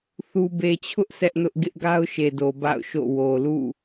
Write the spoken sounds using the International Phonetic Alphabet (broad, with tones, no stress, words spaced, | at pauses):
θu˨be˨t͡ɕʰʊ˦ʔ sʰɛ˦ʔnʊ˦ʔ ɡɪ˦ʔɡa˦ʊ̯ʃe˨do˨ ba̰˦˨ʊ̯ʃo̰˦˨wo˨ lṵ˦˨